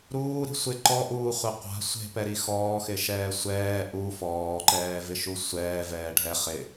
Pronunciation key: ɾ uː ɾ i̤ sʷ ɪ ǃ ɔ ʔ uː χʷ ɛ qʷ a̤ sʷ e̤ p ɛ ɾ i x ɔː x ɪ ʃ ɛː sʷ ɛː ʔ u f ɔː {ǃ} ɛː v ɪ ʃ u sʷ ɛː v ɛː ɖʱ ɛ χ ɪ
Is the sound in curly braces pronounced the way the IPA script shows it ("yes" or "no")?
yes